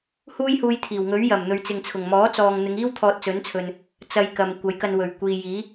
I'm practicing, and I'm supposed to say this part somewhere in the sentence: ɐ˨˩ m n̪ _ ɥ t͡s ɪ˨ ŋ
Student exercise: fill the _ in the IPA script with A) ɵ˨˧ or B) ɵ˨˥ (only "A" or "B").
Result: A